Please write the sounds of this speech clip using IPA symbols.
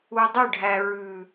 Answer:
u˨dˤɵ˦˨ɖʱæ˨ ɹʉ˨

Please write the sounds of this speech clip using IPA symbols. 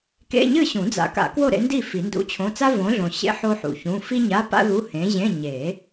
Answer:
kḛ˧˥˧ɲɨ˥˨ɕũ˨˩˦d͡za̰˨˥ ka̰˨˩˦kwo˥˨ɾḛ˨˥ndi˥˨ fi˨˩˦ndṵ˧˥˧t͡ɕʰõ˧˥˧ t͡sa˥võ˨˥ɮõ˨ ɕḛ˥ ħo˥ħṵ˨çũ˧˥˧ fi˥ɲa˧˥˧pa̰˥ ðu˧˥˧hẽ˨˥ʑẽ˧˥˧ ɲe˨˩˦

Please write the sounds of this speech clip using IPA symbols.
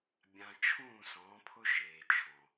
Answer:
bʲã˧ t͡ʃʰũː˦˨sɔ̃ː˨˦pʰʊ˦ ʒeː˨t͡ʃʰɔ̃˨

